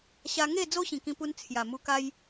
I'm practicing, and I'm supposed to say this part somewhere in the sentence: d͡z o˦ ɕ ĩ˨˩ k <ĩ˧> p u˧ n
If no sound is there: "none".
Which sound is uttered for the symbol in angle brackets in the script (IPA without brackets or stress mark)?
ĩ˧